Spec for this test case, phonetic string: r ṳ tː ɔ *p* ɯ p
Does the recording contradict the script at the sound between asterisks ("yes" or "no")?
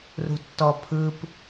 yes